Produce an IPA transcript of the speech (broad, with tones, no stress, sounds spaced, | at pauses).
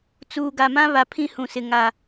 t͡s uː˨ ɡ a˨ m ã˦ β a˨ pʰ ĩ˦ h ũ˨ s ɪ˨ ŋ a˨